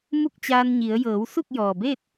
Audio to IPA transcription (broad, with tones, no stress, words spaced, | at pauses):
mu˥˨k̚t͡ɕaː˧nɲi˩˧ə̯ jɤː˩˧wsu˥˨k̚ jɔː˩beː˥˨t̚